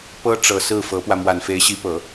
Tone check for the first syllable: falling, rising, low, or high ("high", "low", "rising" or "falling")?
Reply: high